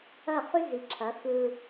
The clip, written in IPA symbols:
ɐ˦˨ χ ʉ˦ z i˨ ǁʰ ɐ˨˦ x ɯ˦

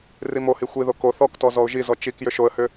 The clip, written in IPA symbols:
r i m o h i xʷ i ð o k o θ ɔ k t ɔ z ɔ ʊ̯ ʒ i z ɔ t͡ʃ i k j ʏ ʃ o ə̯ h ʏ

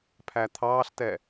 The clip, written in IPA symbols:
pʰ æ t̪ʰ ɑː ɬ t ɛ

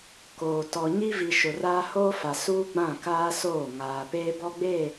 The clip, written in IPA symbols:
k oː˨ t ɔ˨ ɲ i˦ v i˨ ʃ ʊ˨ r aː˦ h oː˦ f a˨ s uː˦ ɡ͡b ã˦˨ k aː˦ s oː˦˨ ŋ aː˨ p eː˦ b ɔ˦ ɡ͡b eː˦˨

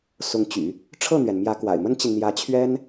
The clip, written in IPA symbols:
s ʊ˧˥ ŋ t͡ɕ y̰˨˩˦ | ʈ͡ʂʰ ɤ˥˩ n̪ ɥ ɛ˩ n m j ä˧˥ k w a̰˨˩ ɪ̯ m ə˥ n t͡ɕ i˨ n n̪ j ä˧˥ t͡ɕʰ ɥ ɛ˥ n

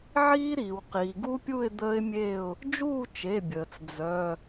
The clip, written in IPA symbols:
ʕ iː˦˥ ɾ iː˩ w q iː˩ ɡ u˦˥ pʲ u˥˨ ɪ̯ d̪ əː˦˥ ɪ̯ mʲ eː˥˨ ʊ̯ | d͡ʒ uː˥˨ t͡ʃ e˩˧˩ bʲ əː˩ t͡s d͡z œ˩˧˩

